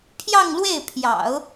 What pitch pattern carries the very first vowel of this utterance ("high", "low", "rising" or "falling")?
falling